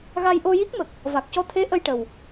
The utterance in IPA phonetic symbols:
ɣa˧jʔo˧ji˦˥k̚mə˨˩k̚ | va˨˩k̚cɔ˧t̪ʰe˧˥ ʔə˧jʈə˨˩w

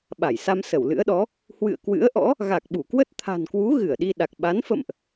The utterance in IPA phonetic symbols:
ɓa˧˩jsa˧m sə˧˩wlɨ̰˧˥ə̯ɗɔ˨˦ | hwɨ̰˧˨ə̯ kwɨ̰˧˥ə̯ʔɔ̰˧˥ | ɣa˨˩k̚ɓu˧˩kwə˦˥t̚ t̪ʰa̤˨˩nkwu˨˦ ɣɨ˧˩ə̯ɗi˧ ɗa˨˩k̚ ɓa˨˦n fə̰˧˨mʔ

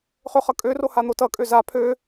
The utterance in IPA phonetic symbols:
χøχʌkʼøro han̪otʌkʼø za pʰø

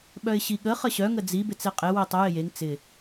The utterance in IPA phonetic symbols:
ɓœɪ̯ɕiɠə χəɕœ ŋəd͡zi bɪt͡seqʼe witˤə jɪjeŋ t͡sɪ

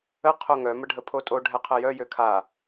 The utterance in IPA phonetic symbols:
ə qʰoŋœ məɖʱəpʰotʼo ɖʱɛqʰəjœ jøkʰa

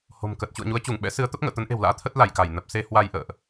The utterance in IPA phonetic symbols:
ho̤˨˩mkə˨˩t̚ t͡ɕṵ˧˨ə̯ɲu˨˦ə̯t͡ɕu˧˩ŋ ɓɛ̰˧˥sɨ˨˦ə̯t̪ə˦˥p̚ ŋə̰ː˧˨t̪ə˨˦nʔe̤˨˩wla̰ː˧˥ t̪ʰə˦˥t̚la˧˩jka˧˩j nə˨˩p̚se˧ hwa˧jʔə̰ː˧˨ʔ

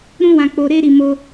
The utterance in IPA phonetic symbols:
ɾũ˦wã˧ k͡po˧ɾe˦ɾi˧ mo˧

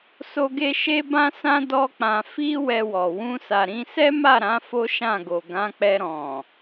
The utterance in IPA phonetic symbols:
so˦ɡe˦ ʃe˦bã˦sã˦ dɔ˦k͡pã˧ fi˦ wɛ˧wɔ˨ wũ˧sa˨ɾĩ˧sɛ˦ ma˦˨ɾã˨˦ fo˦ʃã˦˨ɡo˨ ɡã˨˦k͡pɛ˧ ɾɔ̃˨

